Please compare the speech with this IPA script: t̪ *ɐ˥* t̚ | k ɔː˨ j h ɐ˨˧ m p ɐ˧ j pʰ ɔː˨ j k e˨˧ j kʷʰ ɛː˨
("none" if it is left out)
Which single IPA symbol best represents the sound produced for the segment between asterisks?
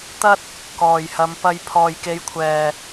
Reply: ɐ˥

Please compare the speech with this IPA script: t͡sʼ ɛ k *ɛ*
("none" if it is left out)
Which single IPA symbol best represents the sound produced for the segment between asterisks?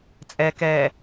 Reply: ɛ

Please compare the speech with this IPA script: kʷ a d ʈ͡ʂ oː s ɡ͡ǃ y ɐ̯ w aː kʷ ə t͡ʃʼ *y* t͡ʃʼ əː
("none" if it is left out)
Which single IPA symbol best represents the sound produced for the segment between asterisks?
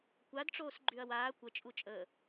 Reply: u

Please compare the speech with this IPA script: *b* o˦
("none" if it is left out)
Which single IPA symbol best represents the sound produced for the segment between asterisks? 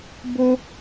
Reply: b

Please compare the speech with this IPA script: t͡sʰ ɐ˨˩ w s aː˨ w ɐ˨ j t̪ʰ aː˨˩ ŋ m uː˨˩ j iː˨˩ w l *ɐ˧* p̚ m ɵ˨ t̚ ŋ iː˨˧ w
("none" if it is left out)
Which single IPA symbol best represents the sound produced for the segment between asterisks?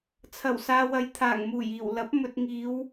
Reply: ɐ˨˥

